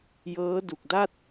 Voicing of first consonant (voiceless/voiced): voiced